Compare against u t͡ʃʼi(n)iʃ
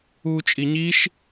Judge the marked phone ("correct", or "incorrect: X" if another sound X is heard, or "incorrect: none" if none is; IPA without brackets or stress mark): incorrect: ɲ